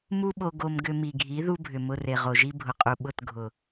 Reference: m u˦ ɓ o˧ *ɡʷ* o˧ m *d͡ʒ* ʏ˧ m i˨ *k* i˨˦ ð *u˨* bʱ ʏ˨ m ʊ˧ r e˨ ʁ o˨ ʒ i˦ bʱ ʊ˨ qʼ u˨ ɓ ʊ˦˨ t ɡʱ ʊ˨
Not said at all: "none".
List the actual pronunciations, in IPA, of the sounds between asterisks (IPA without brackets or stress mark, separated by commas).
ɡ, ɡ, ɡʱ, u˦